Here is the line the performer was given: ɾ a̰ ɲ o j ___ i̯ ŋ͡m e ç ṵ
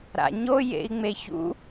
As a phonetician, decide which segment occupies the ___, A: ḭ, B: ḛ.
B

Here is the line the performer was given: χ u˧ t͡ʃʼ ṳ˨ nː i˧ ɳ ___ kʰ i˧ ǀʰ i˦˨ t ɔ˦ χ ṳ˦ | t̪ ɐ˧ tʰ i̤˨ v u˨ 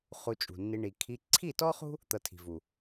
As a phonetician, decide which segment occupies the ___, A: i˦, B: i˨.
B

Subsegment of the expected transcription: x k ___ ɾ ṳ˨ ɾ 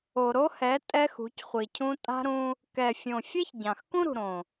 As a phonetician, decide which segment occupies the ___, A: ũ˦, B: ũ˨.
A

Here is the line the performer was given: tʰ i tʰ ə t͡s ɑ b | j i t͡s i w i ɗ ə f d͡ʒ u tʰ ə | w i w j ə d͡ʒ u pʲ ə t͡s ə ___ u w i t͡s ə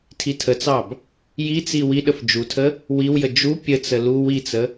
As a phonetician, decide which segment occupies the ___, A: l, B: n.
A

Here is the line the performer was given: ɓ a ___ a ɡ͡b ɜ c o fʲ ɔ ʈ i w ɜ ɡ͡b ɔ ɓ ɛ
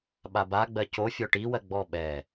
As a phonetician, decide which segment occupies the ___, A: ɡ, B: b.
B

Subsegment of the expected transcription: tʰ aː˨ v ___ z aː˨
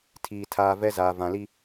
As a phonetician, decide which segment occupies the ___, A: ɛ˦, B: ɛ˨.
A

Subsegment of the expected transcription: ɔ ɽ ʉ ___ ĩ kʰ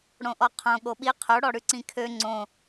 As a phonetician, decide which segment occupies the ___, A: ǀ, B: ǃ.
A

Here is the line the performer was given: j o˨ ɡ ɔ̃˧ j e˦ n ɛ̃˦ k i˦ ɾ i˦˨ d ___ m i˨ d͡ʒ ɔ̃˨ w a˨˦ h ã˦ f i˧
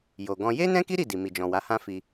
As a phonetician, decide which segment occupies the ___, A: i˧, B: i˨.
B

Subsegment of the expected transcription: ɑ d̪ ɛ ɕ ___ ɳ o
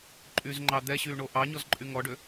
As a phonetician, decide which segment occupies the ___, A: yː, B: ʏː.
A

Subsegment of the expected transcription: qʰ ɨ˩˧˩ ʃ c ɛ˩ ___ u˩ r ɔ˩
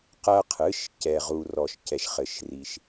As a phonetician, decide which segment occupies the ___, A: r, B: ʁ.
B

